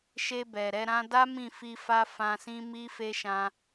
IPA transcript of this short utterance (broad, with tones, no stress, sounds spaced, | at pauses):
ʃ e˧ b ɛ˨ ɾ ɛ˧ ɾ ã˦ d a˦ m ĩ˦˨ f i˧ f a˦ f ã˧ s ĩ˦ m i˦ f e˦ ʃ ã˧